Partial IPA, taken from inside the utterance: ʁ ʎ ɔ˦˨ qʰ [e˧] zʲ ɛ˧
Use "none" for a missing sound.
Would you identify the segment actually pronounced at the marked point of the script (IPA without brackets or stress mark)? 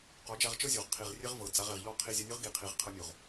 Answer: i˧